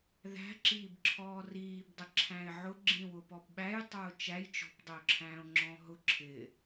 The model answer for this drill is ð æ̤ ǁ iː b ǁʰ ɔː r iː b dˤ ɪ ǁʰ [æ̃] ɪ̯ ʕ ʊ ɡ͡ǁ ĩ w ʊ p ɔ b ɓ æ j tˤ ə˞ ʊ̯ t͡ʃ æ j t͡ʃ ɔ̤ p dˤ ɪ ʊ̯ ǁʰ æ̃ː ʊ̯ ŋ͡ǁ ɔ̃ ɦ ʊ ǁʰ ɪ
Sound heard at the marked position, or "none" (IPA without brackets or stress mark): æ̃